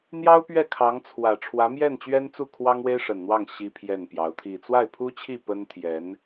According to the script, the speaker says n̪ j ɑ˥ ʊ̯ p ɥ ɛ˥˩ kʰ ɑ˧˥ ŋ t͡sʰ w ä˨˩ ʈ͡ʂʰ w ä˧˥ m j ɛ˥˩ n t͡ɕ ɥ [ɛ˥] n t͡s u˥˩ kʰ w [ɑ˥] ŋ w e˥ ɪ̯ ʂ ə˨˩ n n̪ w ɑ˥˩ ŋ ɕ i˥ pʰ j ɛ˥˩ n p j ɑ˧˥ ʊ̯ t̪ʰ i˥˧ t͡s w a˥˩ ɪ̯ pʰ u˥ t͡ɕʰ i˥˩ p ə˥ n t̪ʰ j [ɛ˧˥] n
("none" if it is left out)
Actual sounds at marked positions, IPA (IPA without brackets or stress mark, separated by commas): ɛ˥, ɑ˥, ɛ˧˥